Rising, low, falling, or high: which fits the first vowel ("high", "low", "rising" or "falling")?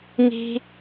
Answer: high